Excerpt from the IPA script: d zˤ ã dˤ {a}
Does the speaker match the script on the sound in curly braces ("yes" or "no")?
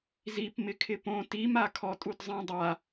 yes